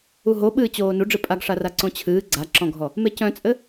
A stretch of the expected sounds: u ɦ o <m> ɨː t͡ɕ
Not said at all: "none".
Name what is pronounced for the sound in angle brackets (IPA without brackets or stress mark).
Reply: ɓ